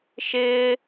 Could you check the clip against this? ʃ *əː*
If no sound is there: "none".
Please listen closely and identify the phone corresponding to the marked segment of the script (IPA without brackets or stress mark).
ɪː